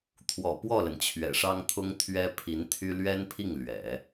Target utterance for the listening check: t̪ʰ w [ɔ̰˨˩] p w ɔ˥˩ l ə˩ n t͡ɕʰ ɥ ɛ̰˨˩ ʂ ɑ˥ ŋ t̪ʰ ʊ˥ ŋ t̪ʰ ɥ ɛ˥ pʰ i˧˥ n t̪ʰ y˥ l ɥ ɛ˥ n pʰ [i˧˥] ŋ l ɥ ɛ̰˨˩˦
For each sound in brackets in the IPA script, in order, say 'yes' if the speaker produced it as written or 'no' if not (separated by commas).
yes, no